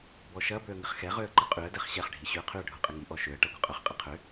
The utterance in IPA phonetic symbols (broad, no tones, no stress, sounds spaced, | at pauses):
b ɔ ʃ ɐ b ø ə̯ ŋ ɪ χ x ɛ ʁ ø ə̯ ǃ ə qʼ y ə̯ d ɛ χ ɕ ɛ χ ɖʱ i ɕ y ə̯ qʰ y ə̯ ɖʱ u qʼ ɪ ŋ i ʔ ɔ ʃ ø ə̯ ʈ ɐ ɡʷ ə qʼ ʊ χ qʼ ɪ qʰ ø